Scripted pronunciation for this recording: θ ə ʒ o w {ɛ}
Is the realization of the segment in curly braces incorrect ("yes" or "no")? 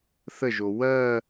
yes